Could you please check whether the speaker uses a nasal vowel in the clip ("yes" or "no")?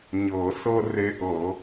no